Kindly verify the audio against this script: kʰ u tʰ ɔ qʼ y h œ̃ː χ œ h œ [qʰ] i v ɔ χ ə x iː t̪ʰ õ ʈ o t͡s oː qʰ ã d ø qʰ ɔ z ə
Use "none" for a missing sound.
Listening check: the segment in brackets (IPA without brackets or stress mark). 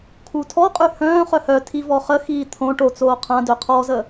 tʰ